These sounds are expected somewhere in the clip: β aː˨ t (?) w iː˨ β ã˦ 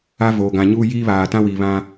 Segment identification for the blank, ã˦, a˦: ã˦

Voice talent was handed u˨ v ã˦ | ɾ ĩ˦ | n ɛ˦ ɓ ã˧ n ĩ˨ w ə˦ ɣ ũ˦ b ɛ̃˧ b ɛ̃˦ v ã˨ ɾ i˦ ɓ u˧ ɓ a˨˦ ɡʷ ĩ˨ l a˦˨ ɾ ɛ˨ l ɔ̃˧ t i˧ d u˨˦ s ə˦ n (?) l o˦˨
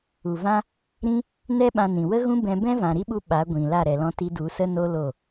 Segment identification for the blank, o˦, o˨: o˦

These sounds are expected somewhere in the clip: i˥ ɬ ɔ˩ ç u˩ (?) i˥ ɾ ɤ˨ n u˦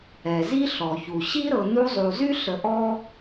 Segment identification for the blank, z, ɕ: ɕ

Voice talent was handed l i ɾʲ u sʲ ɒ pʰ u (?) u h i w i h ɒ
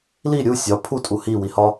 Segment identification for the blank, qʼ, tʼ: tʼ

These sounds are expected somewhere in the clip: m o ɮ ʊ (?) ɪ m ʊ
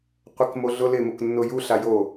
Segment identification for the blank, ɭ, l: l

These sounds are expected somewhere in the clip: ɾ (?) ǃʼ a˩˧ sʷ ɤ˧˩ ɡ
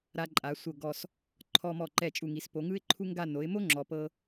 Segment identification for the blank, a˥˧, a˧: a˧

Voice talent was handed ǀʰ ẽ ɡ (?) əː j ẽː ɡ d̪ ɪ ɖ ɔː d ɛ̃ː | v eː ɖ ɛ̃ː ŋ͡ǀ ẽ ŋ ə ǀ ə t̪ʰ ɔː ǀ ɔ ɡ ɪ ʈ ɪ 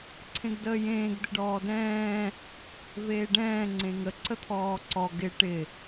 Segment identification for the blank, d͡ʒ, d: d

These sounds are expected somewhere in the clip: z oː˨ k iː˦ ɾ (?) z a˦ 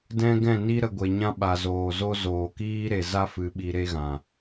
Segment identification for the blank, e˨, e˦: e˨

